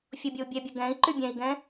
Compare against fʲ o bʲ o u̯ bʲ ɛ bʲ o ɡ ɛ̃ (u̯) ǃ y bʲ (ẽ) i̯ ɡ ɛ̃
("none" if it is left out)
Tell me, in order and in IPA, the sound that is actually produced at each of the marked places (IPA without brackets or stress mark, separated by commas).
i̯, ɛ̃